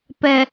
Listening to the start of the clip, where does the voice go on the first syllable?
low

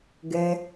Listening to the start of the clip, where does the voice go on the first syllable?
low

